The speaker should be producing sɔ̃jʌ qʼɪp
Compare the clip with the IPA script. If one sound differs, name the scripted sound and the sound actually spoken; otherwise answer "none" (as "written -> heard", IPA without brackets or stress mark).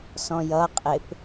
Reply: none